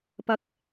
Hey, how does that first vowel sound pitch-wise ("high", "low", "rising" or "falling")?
rising